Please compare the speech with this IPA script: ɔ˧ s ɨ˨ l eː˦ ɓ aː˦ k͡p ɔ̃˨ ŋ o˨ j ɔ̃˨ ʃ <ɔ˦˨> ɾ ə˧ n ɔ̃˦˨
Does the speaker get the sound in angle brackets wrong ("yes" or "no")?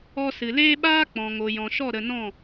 no